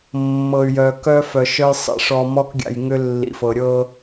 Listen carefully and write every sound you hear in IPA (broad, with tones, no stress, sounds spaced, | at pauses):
mː ɤ˨ y̯ j œ˨ k œ˦ f œ˨ ʃ œ˦ j sˤ ḭ˨ ʂ ɔ˨ m ɔ˦ k ɡʲ a̰˨ j ŋ ʏ˦ lː ḭ˨ f ɤ˨ ɾʲ ɤ˦